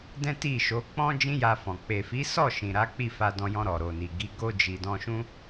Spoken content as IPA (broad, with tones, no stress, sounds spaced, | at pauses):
d ɛ̃˦ t i˦˨ ʃ o˨˦ k͡p ɔ̃˦ d͡ʒ ĩ˦ j a˧ f ɔ̃˨ k͡p e˨ f i˨˦ s ɔ˦˨ ʃ ĩ˨ ɾ a˨˦ k͡p i˦˨ f a˧ d ɔ̃˧ j ɔ̃˧ ɾ ɔ˨ ɾ o˨ n i˨ ɡ i˨˦ ɡ o˧ d͡ʒ i˨ d ɔ̃˧ ʃ ũ˦